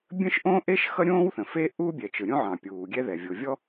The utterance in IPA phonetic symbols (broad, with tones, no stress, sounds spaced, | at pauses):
bʲ ə̃˥ ʃ ʔ õ˥ ʔ e˥ ʃ x ʌ˥ ɾʲ õː˥ w θ ə̃˩ f e˥ ʔ uː˥ bʲ ɛ˩ t͡ʃ ɯ˩ ɾʲ õ˥ ʕ ɑ̃˩ pʲ uː˩ ɡʲ ɛ˥ ð ɛ˩ vʲ o˩ vʲ ɔ˥